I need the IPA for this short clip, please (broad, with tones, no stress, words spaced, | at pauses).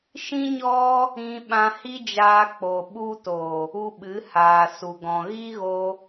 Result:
ʃĩ˦ɲɔ˦ | ĩ˧ ɓã˧hi˦d͡ʒaː˧k͡po˨ ɓu˧to˨ | u˧ɓɨ˨˦haː˨ su˨ɡɔ̃˨ ɣi˦ɣo˧